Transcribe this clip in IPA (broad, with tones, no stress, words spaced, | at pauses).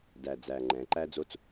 dæ˨˩d͡zæ˨˩ ŋ͡ǃɛ̃˩˧ ǃæ˥d͡zo˥t͡s